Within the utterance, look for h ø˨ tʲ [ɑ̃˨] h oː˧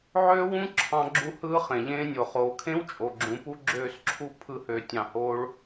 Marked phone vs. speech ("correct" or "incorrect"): correct